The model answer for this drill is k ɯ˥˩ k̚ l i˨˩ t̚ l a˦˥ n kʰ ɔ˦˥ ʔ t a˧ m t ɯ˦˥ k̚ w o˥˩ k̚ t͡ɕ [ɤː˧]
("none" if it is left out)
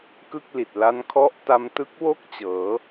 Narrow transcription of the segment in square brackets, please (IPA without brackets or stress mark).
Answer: ɤː˩˦